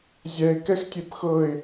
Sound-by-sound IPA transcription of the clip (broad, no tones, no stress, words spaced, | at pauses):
zʲɛɪ̯ kɛxtʲepxɤɪ̯